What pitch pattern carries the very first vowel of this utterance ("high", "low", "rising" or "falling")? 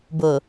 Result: low